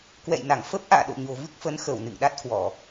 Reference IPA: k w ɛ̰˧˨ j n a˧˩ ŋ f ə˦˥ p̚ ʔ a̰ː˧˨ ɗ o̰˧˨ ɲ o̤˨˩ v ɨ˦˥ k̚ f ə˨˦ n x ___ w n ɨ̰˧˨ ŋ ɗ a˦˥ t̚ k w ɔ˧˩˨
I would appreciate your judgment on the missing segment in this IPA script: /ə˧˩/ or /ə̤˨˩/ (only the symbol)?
ə˧˩